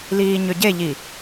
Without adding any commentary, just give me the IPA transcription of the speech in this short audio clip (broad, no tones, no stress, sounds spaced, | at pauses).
l iː ɲ ʏ ɟ e ʎ i